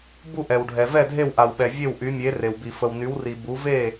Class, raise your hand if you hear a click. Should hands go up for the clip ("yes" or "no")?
no